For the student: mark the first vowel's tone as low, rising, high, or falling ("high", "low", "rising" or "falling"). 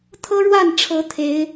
high